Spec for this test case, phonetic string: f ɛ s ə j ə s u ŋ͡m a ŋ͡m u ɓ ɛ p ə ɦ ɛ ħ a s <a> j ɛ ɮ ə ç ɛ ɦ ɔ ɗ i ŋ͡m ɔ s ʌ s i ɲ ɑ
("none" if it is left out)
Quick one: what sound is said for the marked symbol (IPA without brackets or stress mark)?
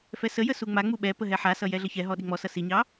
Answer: ʌ